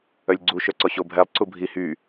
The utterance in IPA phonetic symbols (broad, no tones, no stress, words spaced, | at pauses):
œlʲɡ͡ǀu ʃœǀɔɕobʱɛlˠ ǀubʱi hy